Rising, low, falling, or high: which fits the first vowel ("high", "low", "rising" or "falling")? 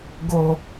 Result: high